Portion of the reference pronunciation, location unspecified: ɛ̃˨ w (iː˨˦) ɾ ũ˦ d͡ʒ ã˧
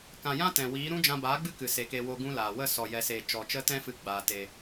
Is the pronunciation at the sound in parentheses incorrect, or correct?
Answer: correct